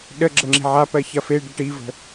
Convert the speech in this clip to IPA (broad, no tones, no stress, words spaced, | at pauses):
ɗəɡ͡ǁə ŋ͡ǁi̤ʕapɜ çɐfeɖɐ ʈivə̤